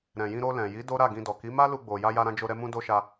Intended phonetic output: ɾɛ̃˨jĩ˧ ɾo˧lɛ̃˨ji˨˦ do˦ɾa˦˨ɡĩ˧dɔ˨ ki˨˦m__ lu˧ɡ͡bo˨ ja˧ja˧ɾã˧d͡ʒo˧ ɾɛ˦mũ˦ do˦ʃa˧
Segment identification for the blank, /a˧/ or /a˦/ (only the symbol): a˦